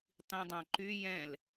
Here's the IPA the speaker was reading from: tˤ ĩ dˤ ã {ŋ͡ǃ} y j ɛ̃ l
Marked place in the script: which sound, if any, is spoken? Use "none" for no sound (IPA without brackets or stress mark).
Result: ǃ